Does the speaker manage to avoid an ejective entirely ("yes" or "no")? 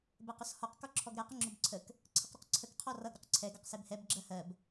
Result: yes